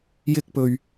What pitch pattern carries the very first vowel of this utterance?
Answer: high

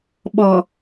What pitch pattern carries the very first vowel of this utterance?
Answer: low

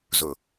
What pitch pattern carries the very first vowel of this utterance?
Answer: low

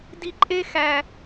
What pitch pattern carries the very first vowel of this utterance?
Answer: low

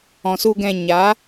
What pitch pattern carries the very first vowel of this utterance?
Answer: low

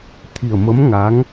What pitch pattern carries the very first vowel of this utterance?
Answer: low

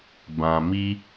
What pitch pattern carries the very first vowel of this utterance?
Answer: low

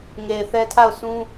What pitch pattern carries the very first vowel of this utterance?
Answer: low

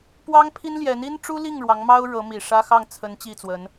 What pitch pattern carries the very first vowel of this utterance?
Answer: high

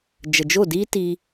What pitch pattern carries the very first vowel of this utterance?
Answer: low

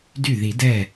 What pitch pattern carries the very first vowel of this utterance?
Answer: falling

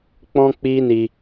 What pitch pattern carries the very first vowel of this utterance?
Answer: high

